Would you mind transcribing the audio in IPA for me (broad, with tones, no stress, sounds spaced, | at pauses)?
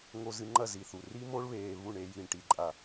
ŋ o˧ z ɨ˧ ŋ͡ǃ ɐ˦˨ z i˧ θ u˨ r i˦ m o˦ ɭ β eː˧ β u˦˨ ɳ e˧ j i˨ ɳ ʈ i˨ ǃʼ a˨